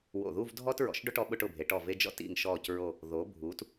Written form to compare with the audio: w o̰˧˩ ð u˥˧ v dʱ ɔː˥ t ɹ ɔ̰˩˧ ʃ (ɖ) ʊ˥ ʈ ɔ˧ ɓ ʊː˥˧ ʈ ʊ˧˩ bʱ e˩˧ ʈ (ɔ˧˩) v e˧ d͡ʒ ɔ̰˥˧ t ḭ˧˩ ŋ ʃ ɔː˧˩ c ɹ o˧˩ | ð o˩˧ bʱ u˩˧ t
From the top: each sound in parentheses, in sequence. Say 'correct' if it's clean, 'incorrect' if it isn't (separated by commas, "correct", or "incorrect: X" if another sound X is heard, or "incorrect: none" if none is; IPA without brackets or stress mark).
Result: correct, correct